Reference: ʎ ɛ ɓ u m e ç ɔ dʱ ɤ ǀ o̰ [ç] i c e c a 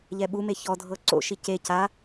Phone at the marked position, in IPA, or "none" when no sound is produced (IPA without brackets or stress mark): ʃ